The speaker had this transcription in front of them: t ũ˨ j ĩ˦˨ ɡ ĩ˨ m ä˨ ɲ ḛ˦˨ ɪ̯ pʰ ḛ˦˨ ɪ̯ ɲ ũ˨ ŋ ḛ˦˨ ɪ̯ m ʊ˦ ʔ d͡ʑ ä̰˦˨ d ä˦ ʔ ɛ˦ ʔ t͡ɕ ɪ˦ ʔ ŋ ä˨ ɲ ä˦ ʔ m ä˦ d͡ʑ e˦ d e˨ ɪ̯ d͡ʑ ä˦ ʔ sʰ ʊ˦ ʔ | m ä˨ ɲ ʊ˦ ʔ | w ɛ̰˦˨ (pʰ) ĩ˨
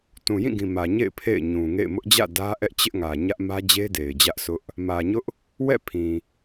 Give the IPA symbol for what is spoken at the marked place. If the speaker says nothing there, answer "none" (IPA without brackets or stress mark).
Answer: pʰ